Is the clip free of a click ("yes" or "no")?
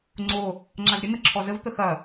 no